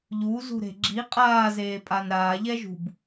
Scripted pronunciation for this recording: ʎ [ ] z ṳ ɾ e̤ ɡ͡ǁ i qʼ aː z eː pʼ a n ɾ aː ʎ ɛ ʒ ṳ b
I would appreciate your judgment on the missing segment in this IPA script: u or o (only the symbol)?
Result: u